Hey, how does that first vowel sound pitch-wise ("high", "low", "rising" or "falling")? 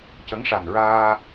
rising